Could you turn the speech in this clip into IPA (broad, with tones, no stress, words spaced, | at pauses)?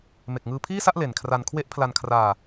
me˨˩k̚ŋɯː˧pʰiː˥˩sa˥˩ʔ le˨˩nkʰra˧n kʰwe˦˥ʔpʰla˧nkʰraː˧